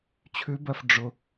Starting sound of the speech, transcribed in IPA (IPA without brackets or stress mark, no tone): t͡ɕʰ